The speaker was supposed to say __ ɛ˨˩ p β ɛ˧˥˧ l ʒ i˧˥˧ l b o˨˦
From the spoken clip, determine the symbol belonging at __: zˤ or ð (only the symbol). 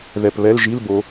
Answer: ð